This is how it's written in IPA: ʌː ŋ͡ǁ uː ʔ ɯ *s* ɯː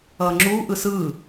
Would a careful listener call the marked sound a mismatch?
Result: no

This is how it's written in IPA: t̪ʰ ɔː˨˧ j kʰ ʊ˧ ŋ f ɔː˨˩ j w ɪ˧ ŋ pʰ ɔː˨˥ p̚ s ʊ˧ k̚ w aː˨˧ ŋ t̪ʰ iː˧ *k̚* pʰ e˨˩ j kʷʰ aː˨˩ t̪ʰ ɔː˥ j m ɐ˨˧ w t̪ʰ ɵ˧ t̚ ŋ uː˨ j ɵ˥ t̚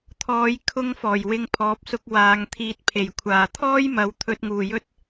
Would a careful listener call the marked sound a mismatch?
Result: yes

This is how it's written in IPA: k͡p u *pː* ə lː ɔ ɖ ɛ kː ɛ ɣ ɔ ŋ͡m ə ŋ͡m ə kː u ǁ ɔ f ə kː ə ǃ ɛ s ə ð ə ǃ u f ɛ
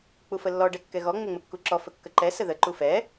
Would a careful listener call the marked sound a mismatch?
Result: yes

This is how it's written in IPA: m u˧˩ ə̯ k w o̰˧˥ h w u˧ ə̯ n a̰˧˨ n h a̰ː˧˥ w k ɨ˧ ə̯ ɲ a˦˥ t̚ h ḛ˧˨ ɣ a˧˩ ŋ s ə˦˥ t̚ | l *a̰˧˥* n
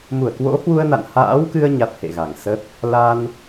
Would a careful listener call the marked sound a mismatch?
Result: yes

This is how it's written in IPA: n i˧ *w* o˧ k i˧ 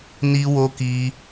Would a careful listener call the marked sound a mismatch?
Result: no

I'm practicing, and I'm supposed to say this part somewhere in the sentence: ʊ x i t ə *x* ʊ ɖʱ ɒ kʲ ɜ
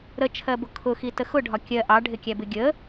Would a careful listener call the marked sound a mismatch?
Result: no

